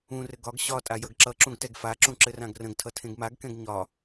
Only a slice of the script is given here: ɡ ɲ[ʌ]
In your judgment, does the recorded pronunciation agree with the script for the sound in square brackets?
no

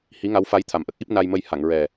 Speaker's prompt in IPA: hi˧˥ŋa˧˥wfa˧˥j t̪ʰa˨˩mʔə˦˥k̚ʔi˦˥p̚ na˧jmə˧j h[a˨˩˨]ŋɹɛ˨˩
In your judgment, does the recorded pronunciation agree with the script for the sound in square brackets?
yes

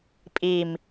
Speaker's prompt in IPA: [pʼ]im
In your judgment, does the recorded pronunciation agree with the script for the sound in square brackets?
yes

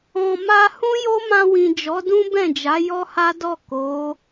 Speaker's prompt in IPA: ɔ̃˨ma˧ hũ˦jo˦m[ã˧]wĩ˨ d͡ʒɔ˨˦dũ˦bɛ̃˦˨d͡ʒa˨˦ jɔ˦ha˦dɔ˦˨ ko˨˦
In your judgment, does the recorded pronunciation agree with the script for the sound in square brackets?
yes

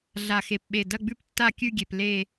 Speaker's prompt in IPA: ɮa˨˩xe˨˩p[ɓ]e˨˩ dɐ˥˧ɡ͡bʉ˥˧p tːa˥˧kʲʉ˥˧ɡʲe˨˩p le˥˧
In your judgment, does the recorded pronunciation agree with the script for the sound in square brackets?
yes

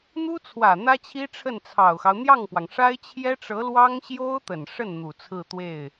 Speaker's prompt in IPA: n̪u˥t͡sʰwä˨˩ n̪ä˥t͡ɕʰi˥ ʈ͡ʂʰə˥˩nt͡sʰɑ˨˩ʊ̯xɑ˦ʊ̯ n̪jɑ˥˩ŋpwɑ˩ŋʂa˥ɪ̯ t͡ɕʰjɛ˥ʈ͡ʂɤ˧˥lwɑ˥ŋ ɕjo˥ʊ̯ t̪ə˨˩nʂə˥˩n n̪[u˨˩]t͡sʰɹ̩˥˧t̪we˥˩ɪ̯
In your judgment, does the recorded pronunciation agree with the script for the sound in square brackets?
yes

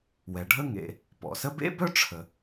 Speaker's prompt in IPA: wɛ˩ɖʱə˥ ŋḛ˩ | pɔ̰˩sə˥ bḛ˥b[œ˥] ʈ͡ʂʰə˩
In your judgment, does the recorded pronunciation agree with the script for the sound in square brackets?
yes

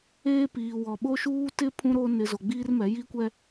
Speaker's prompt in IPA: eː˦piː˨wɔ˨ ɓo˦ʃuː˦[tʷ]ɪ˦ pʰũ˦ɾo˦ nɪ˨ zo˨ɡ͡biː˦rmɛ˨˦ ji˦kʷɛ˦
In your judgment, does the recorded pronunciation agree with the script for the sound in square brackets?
no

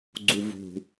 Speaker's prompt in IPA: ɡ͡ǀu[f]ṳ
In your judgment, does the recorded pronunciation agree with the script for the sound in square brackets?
no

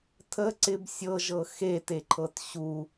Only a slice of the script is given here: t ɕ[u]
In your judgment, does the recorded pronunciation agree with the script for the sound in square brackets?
yes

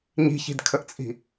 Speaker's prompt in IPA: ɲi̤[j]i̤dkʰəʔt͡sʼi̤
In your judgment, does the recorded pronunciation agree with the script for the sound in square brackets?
no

